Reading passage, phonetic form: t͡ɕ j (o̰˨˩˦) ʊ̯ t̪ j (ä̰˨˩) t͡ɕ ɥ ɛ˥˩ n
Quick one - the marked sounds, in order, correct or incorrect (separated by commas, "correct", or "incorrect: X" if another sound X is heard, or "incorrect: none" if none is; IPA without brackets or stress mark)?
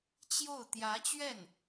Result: incorrect: o˥˩, incorrect: ä˧˥